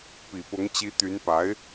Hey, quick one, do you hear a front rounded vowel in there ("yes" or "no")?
yes